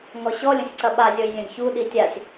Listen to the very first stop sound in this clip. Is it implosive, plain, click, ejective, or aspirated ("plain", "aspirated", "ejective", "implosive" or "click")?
click